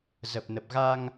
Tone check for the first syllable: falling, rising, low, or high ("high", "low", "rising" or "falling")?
low